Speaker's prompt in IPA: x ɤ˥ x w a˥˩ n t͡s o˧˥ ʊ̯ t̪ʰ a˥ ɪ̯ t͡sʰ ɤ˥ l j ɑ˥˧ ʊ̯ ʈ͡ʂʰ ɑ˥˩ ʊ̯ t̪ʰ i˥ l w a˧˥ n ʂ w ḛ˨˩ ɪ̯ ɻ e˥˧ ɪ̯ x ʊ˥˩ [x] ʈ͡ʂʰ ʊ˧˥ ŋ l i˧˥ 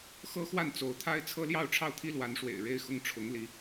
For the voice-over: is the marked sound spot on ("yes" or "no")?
no